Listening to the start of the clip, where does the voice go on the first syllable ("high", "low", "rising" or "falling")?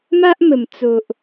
high